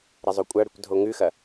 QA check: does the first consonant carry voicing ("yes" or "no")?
yes